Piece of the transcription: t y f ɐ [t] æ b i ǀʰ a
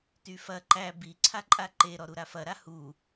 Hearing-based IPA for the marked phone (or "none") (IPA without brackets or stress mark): ǃ